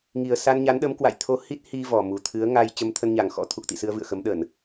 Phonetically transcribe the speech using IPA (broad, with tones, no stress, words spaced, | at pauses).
ŋi˨˩ə̯sa˧nɲa˨˦nɗə˨˦m kwa̰˧˨jt̪ʰo˧hi˦˥t̚ hi˧ vɔ˨˩mu˨˩ t̪ʰɨ˨˦ə̯ ŋa˧j t͡ɕə˧mt̪ʰə˧nɲa˨˩ŋ xɔ̰˧˥t̪ʰu˨˩k̚t̪ḭ˧˨sɨ˧ə̯ vɨ̰˧˨ə̯xə˨˦mɗə˧˩˨n